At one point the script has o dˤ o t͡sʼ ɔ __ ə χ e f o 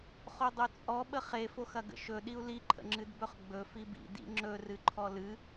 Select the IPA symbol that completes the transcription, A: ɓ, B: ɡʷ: A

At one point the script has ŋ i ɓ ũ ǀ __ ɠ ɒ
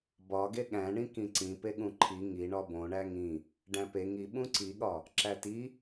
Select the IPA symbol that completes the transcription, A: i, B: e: A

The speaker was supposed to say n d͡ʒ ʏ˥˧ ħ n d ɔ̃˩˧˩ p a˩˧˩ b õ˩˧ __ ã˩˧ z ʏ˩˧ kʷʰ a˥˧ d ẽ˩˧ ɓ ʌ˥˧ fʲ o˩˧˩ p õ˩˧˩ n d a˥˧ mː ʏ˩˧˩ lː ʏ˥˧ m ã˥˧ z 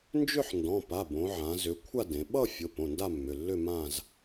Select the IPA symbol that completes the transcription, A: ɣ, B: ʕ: B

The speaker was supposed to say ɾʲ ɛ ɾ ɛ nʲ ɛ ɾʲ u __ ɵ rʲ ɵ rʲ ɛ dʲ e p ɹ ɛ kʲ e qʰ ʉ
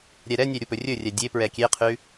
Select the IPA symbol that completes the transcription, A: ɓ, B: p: B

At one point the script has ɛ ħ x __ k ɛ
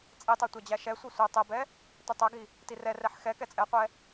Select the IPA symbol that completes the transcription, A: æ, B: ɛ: B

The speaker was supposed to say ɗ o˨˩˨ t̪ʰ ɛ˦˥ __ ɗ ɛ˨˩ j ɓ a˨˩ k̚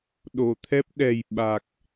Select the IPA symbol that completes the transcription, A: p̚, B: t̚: A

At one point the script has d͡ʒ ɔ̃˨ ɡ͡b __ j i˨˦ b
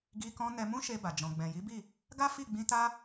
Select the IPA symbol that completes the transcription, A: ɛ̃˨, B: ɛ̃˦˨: A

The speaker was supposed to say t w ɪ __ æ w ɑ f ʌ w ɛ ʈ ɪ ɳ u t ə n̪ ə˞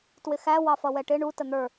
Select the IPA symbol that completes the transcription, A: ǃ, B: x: B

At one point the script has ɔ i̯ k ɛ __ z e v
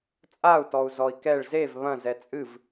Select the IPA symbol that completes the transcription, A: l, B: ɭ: B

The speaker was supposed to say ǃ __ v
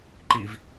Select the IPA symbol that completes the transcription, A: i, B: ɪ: A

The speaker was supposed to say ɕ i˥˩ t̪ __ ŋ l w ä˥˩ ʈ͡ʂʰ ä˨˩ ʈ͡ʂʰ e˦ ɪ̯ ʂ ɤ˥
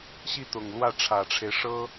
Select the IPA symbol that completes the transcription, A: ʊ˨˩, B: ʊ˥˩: A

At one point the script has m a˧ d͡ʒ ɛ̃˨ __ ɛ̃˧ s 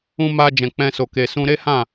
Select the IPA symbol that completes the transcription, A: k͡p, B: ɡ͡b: A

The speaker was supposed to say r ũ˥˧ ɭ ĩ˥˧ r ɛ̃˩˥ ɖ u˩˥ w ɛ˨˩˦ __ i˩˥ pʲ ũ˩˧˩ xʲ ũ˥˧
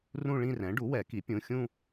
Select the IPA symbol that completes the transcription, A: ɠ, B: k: B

